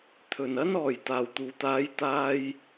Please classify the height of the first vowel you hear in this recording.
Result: mid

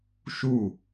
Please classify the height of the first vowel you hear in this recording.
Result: high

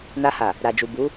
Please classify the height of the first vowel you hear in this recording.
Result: low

